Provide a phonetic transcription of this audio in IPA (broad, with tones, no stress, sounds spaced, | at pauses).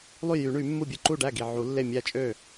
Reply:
lˠ y˥˩ j y˨˩˦ ɳ y˨˩˦ mː u˥˩ bʲ ɯ˥˩ ǃ u˥˩ ɖ æ˥˩ ɡ i˨˩ ʕ u˨˩˦ lː e˥˩ mʲ æ˥˩ t͡ʃʼ ø˥˩